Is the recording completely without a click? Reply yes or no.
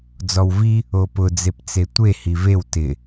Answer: yes